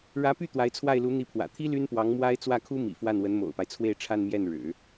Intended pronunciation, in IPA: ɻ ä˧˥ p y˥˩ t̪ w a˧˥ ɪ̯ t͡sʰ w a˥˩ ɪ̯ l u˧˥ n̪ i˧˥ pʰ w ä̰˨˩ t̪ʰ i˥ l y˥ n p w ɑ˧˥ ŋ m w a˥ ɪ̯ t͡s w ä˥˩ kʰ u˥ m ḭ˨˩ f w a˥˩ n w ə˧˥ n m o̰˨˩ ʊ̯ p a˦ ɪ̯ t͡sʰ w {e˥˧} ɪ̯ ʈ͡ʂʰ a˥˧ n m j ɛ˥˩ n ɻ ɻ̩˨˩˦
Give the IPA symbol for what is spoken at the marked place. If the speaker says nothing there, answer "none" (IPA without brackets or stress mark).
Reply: e˥˧